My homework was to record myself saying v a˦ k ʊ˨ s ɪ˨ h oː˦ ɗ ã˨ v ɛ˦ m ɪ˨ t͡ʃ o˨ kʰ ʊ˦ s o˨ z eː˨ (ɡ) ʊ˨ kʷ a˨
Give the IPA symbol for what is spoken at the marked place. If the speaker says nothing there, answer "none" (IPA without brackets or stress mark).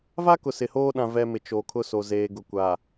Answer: ɡ